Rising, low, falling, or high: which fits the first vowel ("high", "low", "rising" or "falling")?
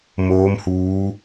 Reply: rising